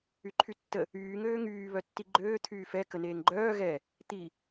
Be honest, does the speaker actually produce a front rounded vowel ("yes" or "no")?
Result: yes